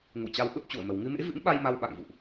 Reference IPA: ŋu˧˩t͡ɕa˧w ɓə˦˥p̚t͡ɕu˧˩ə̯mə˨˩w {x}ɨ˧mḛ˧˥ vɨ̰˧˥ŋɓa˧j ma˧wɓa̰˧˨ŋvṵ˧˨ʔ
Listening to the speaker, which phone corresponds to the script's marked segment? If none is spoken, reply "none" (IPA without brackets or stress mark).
ŋ